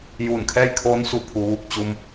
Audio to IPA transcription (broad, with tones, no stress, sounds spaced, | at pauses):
j uː˧˩ n kʰ ɛː˥˨ j kʰ oː˧˥ n s u˧˩ pʰ u˩˧ ʋ u˧˩ k̚ t͡ɕ u˧ m